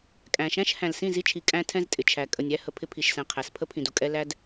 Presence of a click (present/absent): absent